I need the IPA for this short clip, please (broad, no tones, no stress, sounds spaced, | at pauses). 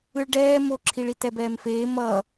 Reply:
ɯ ɭ ɖ ɛː m o ǁʰ i ɭ i t ɛ b ɛː m f eː m ʌ